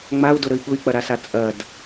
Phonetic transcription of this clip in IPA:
ŋ͡m a u̯ d ʊ ɾ ə i̯ ɠ ʊ i̯ k͡p ɐ ɾ a s a t͡sʼ ɐ d

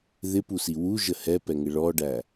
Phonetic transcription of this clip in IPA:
ð ɪ p u s i w u ʒ ə h ɛ p ɛ ŋ ɪ ɭ ɔ ɖ æ

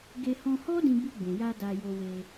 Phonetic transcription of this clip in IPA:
ɡ e˧ h ɔ̃˧ h ɔ˦ d ĩ˧ b i˧ ɡ͡b ũ˨ j a˧ d a˧ j o˧ w e˧

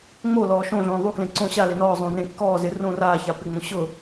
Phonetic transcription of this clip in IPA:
ŋ͡m o l ɔː ʃ õ ɮ õː ðˤ u k l ẽ ǀ õ ɕ a l e n ɔː zˤ õː n ẽ kː ɔː z ɪ r õː r aː ç a p ɪ ŋ͡m õ ɕ ʊ

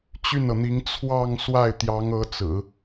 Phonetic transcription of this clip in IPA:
t͡ɕ y˥˩ n ɤ˩ n̪ i˧˥ ŋ t͡sʰ w ɑ˥˧ ŋ s w a˥˩ ɪ̯ t̪ j ɑ˧˥ ŋ ɤ˧˥ t͡s ɹ̩˨˩˦

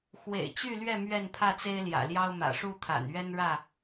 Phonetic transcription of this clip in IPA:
x w ḛ˨˩ ɪ̯ t͡ɕ y˥˨ l ɥ ɛ˥˨ m ɥ ɛ˥˨ n pʰ ä˥˨ t͡s e˦ ɪ̯ l j ä̰˨˩ l j ɑ˦ ʊ̯ m ä̰˨˩ ʂ u˥˨ t̪ʰ a̰˨˩ n ɥ ɛ˦ n ɻ ä˥˨

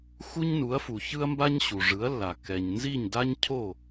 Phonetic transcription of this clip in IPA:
x u˥ ɲ n u˩˥ ɐ̯ f u˩ ç ɯ˥ ɐ̯ m b a˥ ɲ ɕ u˩ ʐ ɯ˩˥ ɐ̯ lː a˩ k ɛ˩ ɲ n z i˥˩ ɲ d a˥ ɲ cʰ o˥˩

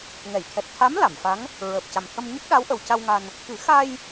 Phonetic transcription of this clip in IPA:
ŋ ɛ˨˩˨ j t̪ʰ ɛ˨˩ t̚ t̪ʰ a˧˥ m l a˨˩˨ m f a˧˥ ŋ | ɹ əː˨˩ p̚ c a˨˩ m t̪ʰ ə˧ m ɲ ə˦˥ k̚ ɗ a˧˥ w ʔ ə˨˩ w c a˧ w ŋ a˧ n | k ɨ˨˩˦ x a˧ j

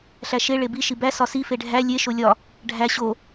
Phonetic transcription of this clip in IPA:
ɬ æ ʃ e ɭ e b i ʃ i b æ s ɒ s i f e ɖʱ æ lʲ e ʃ o lʲ ɒ | ɖʱ æ ɕ o

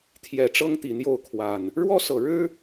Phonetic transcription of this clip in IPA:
t̪ʰ j ɛ˨˩ ʈ͡ʂ ɤ˦ ŋ t̪ i˨˩ n̪ j o˥˨ ʊ̯ kʰ w a˨˩ n | ɻ w ɔ˦ s ɤ˨˩ ɻ ɻ̩˦

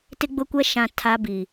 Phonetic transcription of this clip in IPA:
t ɪ˦ ɡ͡b ʊ˦ kʷ ɛ˦ ʃ ã˨ tʰ a˦ b i˨

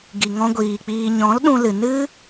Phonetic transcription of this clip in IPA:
ɡ i˨ ŋ ɔ̃˧ ɡʷ iː˨ k͡p iː˨ ɲ ɔ̃˨˦ l ɗ ũ˧ l ɨ˨ n ɨ˦

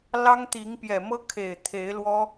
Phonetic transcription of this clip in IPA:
l ɑ˦ ŋ t̪ i˨˦ ŋ p j ɛ˨˩ m ɤ˦ kʰ e˨˩ ɪ̯ t̪ʰ e˨˦ ɪ̯ l w ɔ˦

